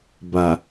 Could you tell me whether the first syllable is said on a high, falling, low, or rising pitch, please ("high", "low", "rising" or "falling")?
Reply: low